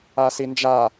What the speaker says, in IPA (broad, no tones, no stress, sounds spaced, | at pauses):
a s i n d͡ʒ a